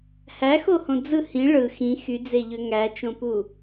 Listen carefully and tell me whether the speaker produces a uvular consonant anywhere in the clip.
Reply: no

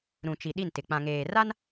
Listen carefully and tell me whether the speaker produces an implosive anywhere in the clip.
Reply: yes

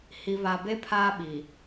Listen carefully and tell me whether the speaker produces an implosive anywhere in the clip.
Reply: yes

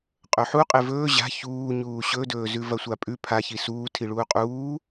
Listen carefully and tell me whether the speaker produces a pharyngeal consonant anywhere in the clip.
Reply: yes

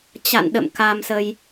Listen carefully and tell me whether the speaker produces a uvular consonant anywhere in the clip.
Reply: no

